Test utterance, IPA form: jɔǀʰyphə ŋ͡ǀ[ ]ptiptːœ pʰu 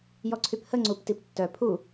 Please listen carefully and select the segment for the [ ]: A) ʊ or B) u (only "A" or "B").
B